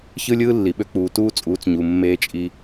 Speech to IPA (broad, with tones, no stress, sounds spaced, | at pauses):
ç ɯ˦ lʲ ɯː˦ lː i˨ ɓ ø˦ k͡p uː˨ t uː˦ t͡sʼ uː˨˦ t͡s ɲ u˨ mː eː˦ t͡ʃʼ i˦